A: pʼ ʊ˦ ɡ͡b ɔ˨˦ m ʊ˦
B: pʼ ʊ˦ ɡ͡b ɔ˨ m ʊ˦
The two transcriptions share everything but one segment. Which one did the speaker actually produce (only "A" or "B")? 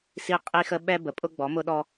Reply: A